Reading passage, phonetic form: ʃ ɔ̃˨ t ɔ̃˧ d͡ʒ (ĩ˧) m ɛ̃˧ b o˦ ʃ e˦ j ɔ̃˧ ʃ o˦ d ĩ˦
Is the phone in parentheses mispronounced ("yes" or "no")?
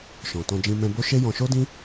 no